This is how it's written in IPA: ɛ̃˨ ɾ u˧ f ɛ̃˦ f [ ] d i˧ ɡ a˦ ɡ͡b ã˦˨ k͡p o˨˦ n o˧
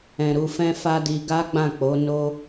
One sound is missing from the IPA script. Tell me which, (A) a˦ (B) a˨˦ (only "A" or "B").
A